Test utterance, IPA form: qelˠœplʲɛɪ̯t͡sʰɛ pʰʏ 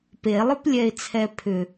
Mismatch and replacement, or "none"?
q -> p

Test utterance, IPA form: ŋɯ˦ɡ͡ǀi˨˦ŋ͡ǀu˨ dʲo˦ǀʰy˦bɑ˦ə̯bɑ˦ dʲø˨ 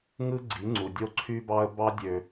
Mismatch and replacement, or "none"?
none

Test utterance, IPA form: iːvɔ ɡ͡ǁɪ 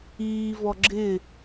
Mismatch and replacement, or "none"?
none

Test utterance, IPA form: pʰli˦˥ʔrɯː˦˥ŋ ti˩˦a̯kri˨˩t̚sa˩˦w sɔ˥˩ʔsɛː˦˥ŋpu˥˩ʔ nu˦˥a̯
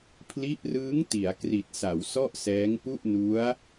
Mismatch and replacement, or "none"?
none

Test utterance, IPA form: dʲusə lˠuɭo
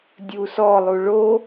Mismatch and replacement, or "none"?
ə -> ɔ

